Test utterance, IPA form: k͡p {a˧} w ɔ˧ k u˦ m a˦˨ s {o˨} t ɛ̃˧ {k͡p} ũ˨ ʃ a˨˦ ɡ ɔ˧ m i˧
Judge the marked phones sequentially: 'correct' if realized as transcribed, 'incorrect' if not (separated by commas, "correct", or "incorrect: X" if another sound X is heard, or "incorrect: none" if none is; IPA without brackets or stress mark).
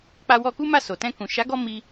correct, correct, incorrect: k